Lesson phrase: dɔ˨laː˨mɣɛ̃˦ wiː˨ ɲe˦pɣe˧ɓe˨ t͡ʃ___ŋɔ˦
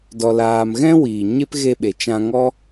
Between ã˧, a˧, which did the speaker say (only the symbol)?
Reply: ã˧